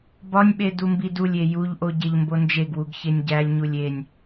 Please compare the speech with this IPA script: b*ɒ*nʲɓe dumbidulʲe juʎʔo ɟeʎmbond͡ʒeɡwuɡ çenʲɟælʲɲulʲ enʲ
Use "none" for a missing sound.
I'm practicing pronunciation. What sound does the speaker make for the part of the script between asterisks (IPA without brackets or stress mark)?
ɒ